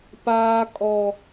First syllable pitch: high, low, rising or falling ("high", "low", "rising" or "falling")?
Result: high